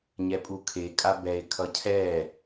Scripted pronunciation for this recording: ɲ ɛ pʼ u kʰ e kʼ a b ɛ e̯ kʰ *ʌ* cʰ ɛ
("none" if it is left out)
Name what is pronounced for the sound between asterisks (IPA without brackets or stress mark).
ʌ